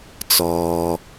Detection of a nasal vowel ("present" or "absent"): absent